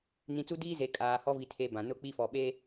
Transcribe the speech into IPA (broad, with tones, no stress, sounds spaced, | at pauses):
n ĩ˨ t͡s u˦ d iː˦ z e˨ kʼ aː˨ h ɔ˦ v i˨ tʰ e˦ b ã˨ n ʊ˦ k͡p i˦ f ɔ˨ ɓ e˦